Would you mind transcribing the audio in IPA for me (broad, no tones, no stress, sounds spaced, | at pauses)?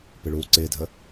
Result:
p ɪ ɭ uː ǀ ɪː dʱ ə